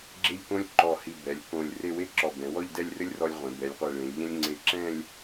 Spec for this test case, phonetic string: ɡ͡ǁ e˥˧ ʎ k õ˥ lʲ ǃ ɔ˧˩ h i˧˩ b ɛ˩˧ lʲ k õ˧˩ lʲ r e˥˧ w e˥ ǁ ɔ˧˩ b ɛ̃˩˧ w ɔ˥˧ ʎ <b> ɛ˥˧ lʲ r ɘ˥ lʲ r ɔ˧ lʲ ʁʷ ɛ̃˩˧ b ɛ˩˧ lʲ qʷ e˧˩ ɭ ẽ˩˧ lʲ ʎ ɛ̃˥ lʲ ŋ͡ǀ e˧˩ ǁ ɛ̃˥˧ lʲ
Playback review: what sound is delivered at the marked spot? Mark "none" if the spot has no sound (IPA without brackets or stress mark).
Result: d